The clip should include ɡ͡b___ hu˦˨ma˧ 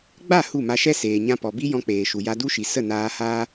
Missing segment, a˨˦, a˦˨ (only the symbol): a˦˨